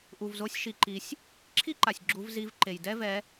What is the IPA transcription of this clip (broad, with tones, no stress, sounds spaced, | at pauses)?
ʔ u˩ v z o˨˦ sʲ ʃ i˩ ǃ i˩ sʲ | ǁʰ i˥ ǃ a˩ sʲ ɡ͡ǁ u˨˦ v z i˨˦ v ǃ e˩ j d ɛ˥ v ɛ˨˦